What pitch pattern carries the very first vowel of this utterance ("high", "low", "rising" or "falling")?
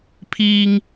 high